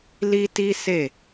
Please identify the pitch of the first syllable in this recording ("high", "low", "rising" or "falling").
high